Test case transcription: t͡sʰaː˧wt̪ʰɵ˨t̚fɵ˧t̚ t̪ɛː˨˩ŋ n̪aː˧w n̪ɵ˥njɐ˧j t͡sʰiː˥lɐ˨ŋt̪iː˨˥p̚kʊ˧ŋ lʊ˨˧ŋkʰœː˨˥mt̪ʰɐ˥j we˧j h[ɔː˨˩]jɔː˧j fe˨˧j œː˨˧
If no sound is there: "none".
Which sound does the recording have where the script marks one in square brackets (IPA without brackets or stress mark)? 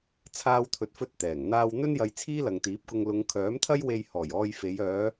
ɔː˨˩